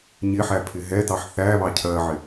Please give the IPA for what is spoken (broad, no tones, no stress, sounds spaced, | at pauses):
ɲ ɪ ħ æ pʰ ɪ ɦ ɛ t ɑ ħ θ æ β ɑ cʰ ɜ ʕ ɪ